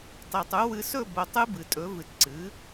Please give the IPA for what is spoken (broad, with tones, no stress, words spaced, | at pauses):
tˤi˨tˤu˩˥ wɨ˧˥ sɵ˥˨bo˨tˤɨ˧˥ bɨ˨tʼɵ˩˥ vɨ˨tǀɨ˩˥